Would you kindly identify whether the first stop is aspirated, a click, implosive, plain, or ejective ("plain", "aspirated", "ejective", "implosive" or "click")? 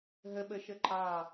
implosive